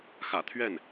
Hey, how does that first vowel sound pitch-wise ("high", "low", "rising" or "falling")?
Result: low